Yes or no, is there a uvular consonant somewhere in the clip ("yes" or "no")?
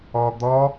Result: no